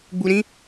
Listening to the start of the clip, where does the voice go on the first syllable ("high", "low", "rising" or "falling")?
low